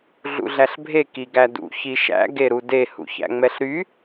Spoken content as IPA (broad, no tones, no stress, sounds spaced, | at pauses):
ɮ ṵ ɮ æ ɬ bʱ e k i ɡ æ d ṵ ç i ʃ æ̰ ɡ e ɾ u d e h ṵ ç æ̰ ŋ͡m ɛ ɬ ɾ y